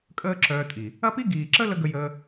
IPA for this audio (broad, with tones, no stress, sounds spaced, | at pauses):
kʼ əː˦ ǁ œː˧ tʼ i˨ | ɐ˦ p i˦ ɡ iː˨ ǁ ə˦ l ə˧ ɡ ə˧ j əː˧